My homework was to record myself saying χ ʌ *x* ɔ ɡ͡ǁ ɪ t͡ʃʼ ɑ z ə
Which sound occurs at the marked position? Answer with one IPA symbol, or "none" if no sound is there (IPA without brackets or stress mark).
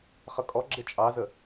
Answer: kʼ